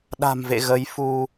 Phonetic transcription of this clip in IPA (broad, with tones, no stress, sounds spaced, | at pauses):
ɗ a̤˨˩ m v ḛ˧˨ ɣ ə˨˦ j f u˧